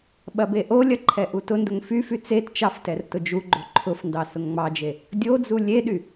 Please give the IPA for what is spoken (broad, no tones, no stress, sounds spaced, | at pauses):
ɓ ɐ b e ʔ o lʲ ɐ ǃʰ ɛ ʔ u t ʊ n d ʊ ŋ f y f y t͡s e t t͡ʃ ɑ f t ɛ r t ʊ d͡ʒ u ɡ͡ǃ o ǃʰ ʊ f n d ɑ s ʊ ŋ ŋ͡m ɑ d͡ʒ e | dʲ o d͡z u lʲ e ɗ y